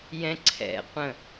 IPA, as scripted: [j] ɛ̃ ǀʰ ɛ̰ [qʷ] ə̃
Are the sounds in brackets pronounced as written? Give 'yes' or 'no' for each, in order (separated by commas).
yes, yes